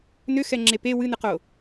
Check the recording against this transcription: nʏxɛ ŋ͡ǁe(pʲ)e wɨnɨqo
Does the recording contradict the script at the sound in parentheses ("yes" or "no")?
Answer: yes